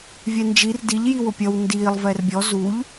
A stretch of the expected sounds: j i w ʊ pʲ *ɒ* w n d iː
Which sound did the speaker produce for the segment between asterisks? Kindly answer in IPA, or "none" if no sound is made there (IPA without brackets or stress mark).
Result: ʌ